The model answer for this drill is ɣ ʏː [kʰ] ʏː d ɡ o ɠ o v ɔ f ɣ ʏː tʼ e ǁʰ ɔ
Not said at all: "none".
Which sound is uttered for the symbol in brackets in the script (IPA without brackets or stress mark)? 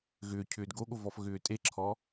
cʰ